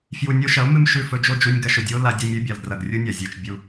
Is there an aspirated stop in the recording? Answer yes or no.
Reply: no